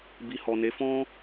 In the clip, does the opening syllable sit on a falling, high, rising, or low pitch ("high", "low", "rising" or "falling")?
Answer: low